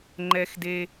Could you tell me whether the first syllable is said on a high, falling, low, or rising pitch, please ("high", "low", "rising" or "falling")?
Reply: high